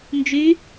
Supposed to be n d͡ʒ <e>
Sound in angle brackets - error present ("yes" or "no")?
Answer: yes